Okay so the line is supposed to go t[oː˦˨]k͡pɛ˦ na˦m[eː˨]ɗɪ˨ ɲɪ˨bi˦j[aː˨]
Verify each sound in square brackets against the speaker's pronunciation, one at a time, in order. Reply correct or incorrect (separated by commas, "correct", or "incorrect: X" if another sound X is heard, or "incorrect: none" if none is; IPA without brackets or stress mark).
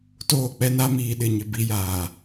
correct, incorrect: iː˨, correct